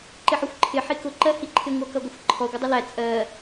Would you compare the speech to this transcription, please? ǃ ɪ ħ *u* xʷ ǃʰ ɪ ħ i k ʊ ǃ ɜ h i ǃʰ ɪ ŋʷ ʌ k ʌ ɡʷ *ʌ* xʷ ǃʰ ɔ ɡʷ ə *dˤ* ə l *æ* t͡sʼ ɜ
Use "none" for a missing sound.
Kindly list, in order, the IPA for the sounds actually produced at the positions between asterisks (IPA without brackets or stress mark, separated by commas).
ʊ, ʌ, dˤ, æ